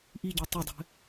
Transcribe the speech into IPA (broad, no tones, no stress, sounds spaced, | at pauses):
ʔ i ɟ e tˤ ɘ dˤ ɛ̤